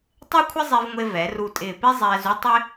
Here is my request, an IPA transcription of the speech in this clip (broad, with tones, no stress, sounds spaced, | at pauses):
tˤ e˥ kʷʰ ɪ˥ zˤ i˧ v ŋʷ e˧ v ɛ˩˧ r u˧˩ tʼ ɪː˧˩ p i˥ zˤ ɛː˧ z u˥˧ tˤ ɪ˥